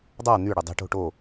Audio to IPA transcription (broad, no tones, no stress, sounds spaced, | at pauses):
dˤ a n̪ y ɽ ø dˤ e̤ ʈ o̤ ʈ o